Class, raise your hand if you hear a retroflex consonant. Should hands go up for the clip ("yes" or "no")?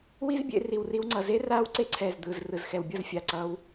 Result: no